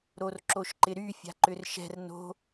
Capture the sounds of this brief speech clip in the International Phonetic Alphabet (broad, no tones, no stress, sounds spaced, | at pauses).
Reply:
ɾ o r ǁ o ʃ ǃ ɪ ɾ y fʲ a̤ ǃ ʏ r ʃ ɛ̤ r n o̤